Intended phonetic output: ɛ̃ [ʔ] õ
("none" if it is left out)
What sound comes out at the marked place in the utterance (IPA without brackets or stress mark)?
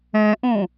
ʔ